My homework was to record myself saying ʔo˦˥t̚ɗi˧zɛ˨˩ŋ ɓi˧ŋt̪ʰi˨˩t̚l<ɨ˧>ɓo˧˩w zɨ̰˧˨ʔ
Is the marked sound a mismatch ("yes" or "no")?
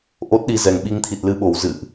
no